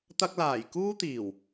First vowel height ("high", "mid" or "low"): low